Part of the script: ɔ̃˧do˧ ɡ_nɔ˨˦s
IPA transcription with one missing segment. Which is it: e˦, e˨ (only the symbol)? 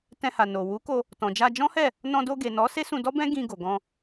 e˨